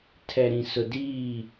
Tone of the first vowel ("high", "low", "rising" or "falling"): low